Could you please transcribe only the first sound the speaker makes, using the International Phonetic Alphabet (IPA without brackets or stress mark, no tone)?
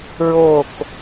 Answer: ɹ